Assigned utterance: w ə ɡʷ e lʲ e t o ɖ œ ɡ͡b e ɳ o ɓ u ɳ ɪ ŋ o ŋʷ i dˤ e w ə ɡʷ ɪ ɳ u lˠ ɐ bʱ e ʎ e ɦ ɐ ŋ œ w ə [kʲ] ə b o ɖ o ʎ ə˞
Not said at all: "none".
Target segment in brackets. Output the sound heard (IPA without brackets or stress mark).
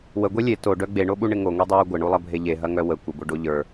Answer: kʷ